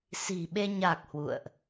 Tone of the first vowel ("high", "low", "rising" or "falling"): low